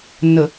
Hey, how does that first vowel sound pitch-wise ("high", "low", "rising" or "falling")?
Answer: low